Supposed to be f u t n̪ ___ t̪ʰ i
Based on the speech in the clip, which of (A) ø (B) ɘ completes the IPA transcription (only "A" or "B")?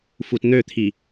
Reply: A